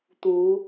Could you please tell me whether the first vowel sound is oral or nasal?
oral